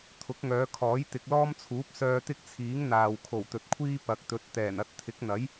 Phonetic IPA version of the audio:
t̪ʰ ʊ˨˥ k̚ ŋ œː˨˧ kʰ ɔː˨˥ j t̪ ɪ˨ k̚ l ɔː˥ m t͡sʰ uː˨˥ p̚ s œː˧ t̪ ɪ˥ k̚ t͡sʰ iː˨˥ ŋ n̪ aː˨ w kʰ o˨˩ w t̪ ɵ˨ t̚ kʷʰ iː˥ p ɐ˨ k̚ t̪ ɵ˨˥ t̚ t̪ ɛː˨˩ n ɐ˧ t̚ t̪ʰ ɪ˨˥ k̚ n̪ ɐ˨˥ j

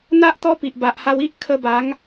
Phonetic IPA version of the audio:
n̪ a˦ ʔ t̪ ɔ˦ p i˨ ʔ b a˨ ʔ h a˧ w i˦ ʔ kʰ ə˧ b a˨˦ ŋ

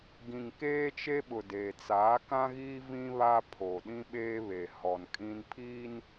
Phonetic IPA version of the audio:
ɡ ĩ˨ ŋ k eː˦ t͡ʃ e˦ ɓ ʊ˨ d e˨ t͡s aː˨˦ k ã˦ ɣ iː˦ v ĩ˦ β a˦ pʰ o˨ ɗ ĩ˦ ɓ eː˦ β e˨ h ɔ˨ n kʼ ĩ˦ n pʰ iː˦ n

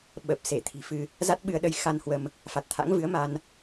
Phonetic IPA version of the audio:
ɓ ə˨˩ p̚ s e˧˩ t̪ʰ i̤˨˩ f ɨ˧ | z a˦˥ t̚ ɓ ɨ˧ ə̯ ɗ ə˧ j x a˧ n h w ə˧ m | f a˨˩ t̚ t̪ʰ a̰˧˥ ŋ v ɨ˨˦ ə̯ m a˧ n

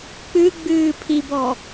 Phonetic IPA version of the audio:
k͡p ɨ ɡ͡b ɨː pʰ i b ɔ

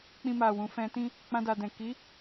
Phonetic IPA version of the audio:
k͡p ĩ˧ m a˨ w ũ˨ f ɛ̃˧ t ĩ˦ | k͡p ã˧ d a˨ d ɛ̃˨ k i˨˦

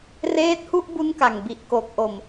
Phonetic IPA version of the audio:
r eː˦˥ t̚ h u˥˩ ʔ b u˦˥ n k a˨˩ ŋ b i˨˩ ʔ k o˨˩ k̚ ʔ o˨˩ m

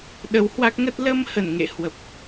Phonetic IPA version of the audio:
ɗ ə˨˦ w h w a˦˥ k̚ ŋ ə˦˥ t̚ l ə˧ m h ə˧˩ n ŋ ḛ˧˨ h w ə˨˩ p̚

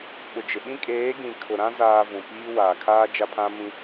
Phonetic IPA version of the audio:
ɓ ʊ˨ d͡ʒ ɪ˨ ɓ ĩ˦ kʼ eː˨˦ ɡ ĩ˨ kʰ ʊ˨ ɾ ã˦ z aː˨ v ũ˨ p iː˦ w aː˨ kʰ aː˦ d͡ʒ a˦ pʰ ã˦ m ĩ˦

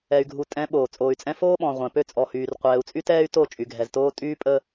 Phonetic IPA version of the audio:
ɛ˨ y̯ ɡʱ u˨ tʼ ɛ̃˨˦ ɓ oː˨ t͡sʼ oː˨ y̯ t͡sʼ ɛ̃˦ f oː˦ ɓ ɔ̃˨ ʁʷ ɛ̃˨ p ø˦ t͡sʼ ɔ˨ h yː˨ r qʷ ɛː˨ u̯ t͡sʼ y˦ t ɛː˦ y̯ t o˦˨ t͡ʃʼ y˨ ɡʱ ɛ˨ z t oː˦ tʼ yː˦ pʼ ə˦

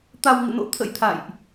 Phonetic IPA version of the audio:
t̪ a˧ w ŋ ɨ̰˧˨ n o̰˧˥ t̪ʰ ə̰˧˥ j t̪ʰ a̰˧˨ j ʔ

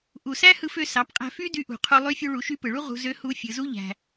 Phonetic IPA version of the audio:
ʔ u˩ s æ˥ h ɯ˧ f ø˧ s ɑ˩˧ p qʼ æ̤˧ f y˥ d y˧ ʔ ṳ˩ qʰ u˧ lˠ y˧˥ fʲ u˧ ɭ u˩˧ ʃ y˧˥ p ɯ˩ ɭ u˥ ʁ ṳ˧ z ø˧˥ h u˧˥ fʲ ɯ˩˧ z u˥ ʎ æ̤˩

